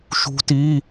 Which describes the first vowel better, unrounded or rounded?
rounded